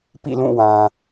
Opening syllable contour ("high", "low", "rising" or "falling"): falling